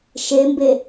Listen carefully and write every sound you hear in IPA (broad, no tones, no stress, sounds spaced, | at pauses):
ʃ e m b e